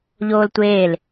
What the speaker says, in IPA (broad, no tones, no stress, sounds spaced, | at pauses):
ʎ oː l tʷ eː l